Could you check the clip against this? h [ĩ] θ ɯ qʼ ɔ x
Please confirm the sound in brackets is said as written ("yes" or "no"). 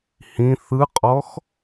yes